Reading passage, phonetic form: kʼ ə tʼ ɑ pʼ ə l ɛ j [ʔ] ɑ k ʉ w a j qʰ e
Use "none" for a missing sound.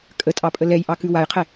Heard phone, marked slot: ʔ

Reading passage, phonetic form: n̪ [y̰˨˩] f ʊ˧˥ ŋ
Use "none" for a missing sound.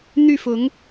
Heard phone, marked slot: y˥˩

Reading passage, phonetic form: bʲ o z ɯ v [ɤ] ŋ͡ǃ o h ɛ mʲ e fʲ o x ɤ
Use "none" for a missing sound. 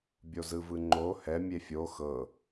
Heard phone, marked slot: ɯ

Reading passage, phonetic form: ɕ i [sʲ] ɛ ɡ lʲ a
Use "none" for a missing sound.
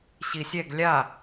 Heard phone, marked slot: sʲ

